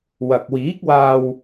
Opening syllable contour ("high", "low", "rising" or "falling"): low